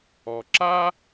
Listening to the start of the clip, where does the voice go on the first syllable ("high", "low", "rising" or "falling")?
low